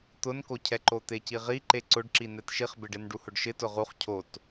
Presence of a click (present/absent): present